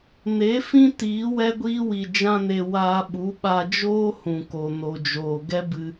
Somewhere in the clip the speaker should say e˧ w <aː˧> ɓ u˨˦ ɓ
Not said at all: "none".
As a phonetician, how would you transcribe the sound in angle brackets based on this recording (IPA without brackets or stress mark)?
aː˧